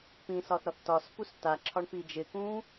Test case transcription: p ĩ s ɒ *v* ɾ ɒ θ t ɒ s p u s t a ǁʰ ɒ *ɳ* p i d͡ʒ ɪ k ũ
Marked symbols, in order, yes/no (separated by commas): no, yes